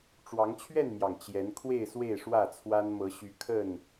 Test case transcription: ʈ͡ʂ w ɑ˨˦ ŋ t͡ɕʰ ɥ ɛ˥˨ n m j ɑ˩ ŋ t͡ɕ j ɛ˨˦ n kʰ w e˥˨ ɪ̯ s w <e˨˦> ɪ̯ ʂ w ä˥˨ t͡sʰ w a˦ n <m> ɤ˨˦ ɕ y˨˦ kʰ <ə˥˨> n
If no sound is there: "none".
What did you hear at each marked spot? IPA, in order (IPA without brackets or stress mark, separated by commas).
e˥˨, m, ə˥˨